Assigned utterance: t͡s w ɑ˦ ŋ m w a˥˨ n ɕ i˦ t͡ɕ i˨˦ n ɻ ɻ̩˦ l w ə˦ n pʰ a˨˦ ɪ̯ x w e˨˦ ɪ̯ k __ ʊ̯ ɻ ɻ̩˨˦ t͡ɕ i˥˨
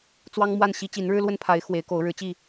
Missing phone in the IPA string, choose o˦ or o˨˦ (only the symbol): o˨˦